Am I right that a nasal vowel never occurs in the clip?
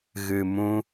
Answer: no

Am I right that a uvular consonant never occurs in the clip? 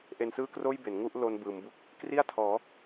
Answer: yes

